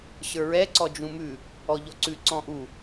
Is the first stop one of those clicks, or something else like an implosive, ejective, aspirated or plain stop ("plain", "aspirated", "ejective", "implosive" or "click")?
click